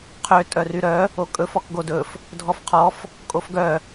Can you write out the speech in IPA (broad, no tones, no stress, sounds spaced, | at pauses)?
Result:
qʰ ø tʼ œ r y ɾ œ | o kʼ ɵ f ɔ k ɡ o d ɵ f | dʱ ɔ f qʰ ɔ f | kʼ o f ɡ œ